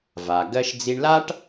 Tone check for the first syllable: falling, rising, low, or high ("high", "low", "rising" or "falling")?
low